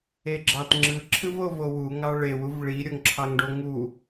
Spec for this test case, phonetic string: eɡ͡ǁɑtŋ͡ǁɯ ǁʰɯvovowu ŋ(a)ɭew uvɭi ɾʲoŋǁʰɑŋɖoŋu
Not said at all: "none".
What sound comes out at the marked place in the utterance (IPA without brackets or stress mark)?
ɑ